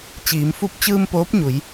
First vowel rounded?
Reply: no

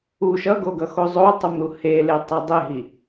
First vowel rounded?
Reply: yes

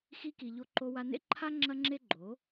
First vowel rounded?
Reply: no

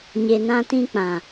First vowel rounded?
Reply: no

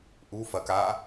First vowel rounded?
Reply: yes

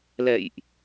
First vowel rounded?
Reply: no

